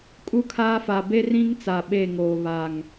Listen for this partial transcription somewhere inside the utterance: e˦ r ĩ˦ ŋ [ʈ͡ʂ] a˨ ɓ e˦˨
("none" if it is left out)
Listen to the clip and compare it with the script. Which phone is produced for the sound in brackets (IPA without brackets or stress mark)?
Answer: t͡s